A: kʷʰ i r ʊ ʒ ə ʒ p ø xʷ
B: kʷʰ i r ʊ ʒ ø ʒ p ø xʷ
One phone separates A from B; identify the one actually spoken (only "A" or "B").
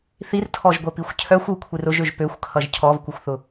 B